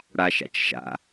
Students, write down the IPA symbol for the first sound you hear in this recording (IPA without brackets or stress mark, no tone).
ɽ